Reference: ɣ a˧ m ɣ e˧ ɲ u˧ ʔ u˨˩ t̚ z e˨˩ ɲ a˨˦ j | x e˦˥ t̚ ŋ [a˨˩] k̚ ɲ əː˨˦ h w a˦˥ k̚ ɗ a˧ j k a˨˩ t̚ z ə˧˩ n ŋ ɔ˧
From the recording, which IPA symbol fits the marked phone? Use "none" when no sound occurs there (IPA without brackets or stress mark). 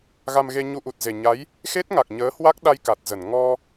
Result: a˨˩